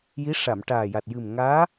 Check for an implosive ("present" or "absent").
absent